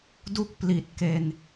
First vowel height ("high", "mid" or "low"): high